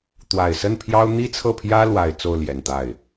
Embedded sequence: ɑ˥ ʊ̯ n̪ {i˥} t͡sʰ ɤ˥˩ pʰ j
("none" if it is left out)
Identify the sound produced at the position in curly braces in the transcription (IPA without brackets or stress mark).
i˥